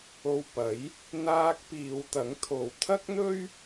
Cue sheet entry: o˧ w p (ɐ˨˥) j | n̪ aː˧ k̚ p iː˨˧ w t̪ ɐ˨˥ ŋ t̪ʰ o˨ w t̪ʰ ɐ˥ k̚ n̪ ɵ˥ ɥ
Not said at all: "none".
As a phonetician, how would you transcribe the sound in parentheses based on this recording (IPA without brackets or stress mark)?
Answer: ɐ˨˥